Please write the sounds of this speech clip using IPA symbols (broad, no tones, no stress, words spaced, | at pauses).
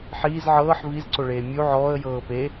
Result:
ħiːz ʕɤːħ vizǀoɭeː mʲu ʕɔːə̯jɤː pe